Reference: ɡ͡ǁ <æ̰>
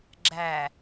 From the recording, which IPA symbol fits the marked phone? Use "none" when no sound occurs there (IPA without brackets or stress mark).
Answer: æ